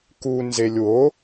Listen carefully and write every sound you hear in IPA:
k u n z e lʲ w o

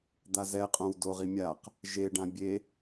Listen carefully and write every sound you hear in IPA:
d̪ a z ɛ qʼ õ w d o ʁ i mʲ a q | ʒ e ɖ ã bʲ e

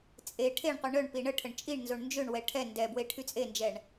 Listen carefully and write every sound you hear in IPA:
t͡sʼ e ʈʰ e ɳ qʷ i ɳ œ ɳ p i ɳ ə ʈʰ ə ɳ t͡ʃʼ i ɳ n z o ɳ n d͡ʒ ø ɳ w ɛ ʈʰ ɛ n d ɛ b w e ʈʰ y t͡sʼ e n d͡ʒ ɛ ɳ

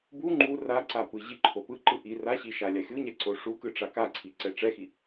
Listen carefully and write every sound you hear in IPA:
b u ŋ͡ǃ u r a ǀ a p ɯ ʑ i ǃʰ o p ɯ ǃ ɯ ʔ i r a ɕ i ʃ a lʲ a xʲ u ɲ ɛ ǀ o ʂ u k ɯ ʈ͡ʂ a k a ǀʰ i ǀ ɛ ʈ͡ʂ ɛ x i

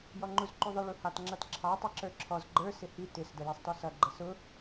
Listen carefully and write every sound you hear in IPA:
j ɔ ŋ͡ǃ u z ǃ u ðˤ ɪ ɭ u h ɑ t ŋ͡ǁ ʌ t ǁʰ ɑ tˤ i ǁ ə˞ ǁʰ ɔ z ɡ͡ǃ ə˞ s ɪ h i t ɪ s d ə j ɛ sˤ t ɔ s ʌ ɡ͡ǃ ə s ʊ

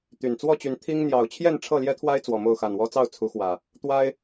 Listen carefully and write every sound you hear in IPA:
t̪ y˨˩ n t͡s w ɔ˥˨ t͡ɕ y˨˦ n t̪ʰ i˦ ŋ n̪ j ɑ˨˩ ʊ̯ t͡ɕʰ j ɛ˥˨ n ʈ͡ʂʰ ɤ˥˨ l j ɛ˦ t̪ʰ w a˦ ɪ̯ t͡s w ɔ˨˩ m o˥˨ ʊ̯ x a˨˩ n w ɔ˦ t͡s ɑ˥˨ ʊ̯ t͡sʰ u˨˦ x w ä˨˩ | t̪ w a˦ ɪ̯

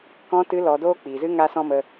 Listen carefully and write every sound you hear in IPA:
k ɔ̃˦ t ɨ˦ l ɔ˧ d oː˦ k͡p iː˨ z ɨ˦ ŋ a˦ s ɔ̃˦ m ə˧

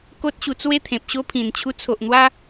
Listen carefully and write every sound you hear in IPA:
k o˦ t̚ ɕ u˧ t͡s w e˦ t̪ʰ ẽ˨ p̚ ɕ o˦ pʰ ĩ˨˩ n t͡ɕʰ u˧ t͡sʰ o˨ ʔ n̪ w a˦

